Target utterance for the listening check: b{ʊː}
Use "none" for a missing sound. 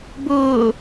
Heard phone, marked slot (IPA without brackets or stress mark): ʊː